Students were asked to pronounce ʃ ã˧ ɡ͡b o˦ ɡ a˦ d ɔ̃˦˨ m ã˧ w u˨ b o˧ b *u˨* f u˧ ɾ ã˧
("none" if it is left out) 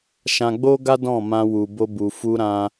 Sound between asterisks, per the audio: u˨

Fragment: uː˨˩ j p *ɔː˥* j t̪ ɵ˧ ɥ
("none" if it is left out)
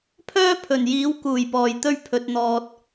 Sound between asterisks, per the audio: ɔː˨˩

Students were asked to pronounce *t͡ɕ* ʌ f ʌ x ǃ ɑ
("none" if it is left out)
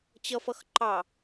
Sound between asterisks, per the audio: t͡ɕ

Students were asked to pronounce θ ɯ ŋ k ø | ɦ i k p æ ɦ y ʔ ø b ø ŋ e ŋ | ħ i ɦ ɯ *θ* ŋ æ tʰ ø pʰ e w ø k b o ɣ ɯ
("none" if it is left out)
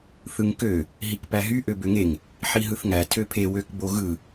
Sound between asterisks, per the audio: θ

